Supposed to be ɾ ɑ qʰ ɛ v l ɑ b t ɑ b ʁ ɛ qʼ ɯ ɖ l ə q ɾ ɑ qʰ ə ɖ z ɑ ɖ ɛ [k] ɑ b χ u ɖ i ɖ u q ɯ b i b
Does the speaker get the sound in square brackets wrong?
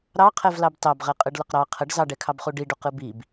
yes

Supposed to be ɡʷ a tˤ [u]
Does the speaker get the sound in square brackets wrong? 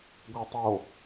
yes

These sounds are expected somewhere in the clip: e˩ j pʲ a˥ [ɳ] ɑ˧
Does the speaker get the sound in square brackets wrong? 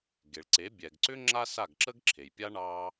no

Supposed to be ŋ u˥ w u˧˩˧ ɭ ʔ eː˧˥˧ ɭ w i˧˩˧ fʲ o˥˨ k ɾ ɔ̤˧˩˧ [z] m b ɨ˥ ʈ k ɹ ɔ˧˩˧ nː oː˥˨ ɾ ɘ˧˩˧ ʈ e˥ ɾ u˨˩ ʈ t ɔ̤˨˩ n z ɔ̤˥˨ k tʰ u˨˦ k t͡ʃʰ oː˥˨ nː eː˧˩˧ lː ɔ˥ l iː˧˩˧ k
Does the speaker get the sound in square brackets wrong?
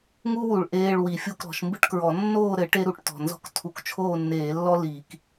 yes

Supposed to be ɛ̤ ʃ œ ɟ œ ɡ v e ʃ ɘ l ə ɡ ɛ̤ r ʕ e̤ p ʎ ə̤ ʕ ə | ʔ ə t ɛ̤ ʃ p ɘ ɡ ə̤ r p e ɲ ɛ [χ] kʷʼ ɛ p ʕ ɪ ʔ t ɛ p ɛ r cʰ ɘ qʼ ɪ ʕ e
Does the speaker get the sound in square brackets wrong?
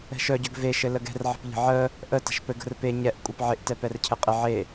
yes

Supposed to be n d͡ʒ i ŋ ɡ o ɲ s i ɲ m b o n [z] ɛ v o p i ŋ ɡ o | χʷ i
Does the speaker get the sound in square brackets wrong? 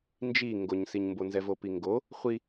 no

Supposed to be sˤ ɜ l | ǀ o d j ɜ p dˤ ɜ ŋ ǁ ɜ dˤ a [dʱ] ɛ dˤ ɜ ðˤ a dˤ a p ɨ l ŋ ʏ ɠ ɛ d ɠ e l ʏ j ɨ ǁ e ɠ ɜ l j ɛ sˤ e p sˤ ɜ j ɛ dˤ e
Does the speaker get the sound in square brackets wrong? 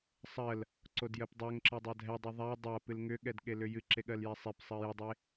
no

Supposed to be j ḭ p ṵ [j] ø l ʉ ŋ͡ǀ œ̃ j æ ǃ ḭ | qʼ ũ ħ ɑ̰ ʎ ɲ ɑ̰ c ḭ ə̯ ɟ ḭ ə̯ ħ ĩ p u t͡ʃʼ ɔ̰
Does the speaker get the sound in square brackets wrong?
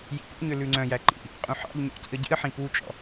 yes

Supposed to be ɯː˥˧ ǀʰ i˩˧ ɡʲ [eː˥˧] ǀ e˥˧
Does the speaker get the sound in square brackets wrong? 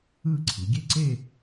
yes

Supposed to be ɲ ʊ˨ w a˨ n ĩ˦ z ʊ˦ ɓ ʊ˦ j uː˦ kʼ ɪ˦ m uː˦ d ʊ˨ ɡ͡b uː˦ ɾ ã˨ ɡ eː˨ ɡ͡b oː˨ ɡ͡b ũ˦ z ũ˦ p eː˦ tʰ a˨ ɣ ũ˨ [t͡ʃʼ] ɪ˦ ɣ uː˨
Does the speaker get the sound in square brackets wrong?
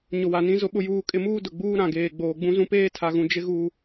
yes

